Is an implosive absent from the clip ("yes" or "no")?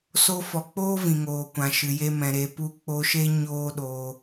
no